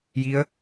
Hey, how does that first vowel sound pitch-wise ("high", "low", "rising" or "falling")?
rising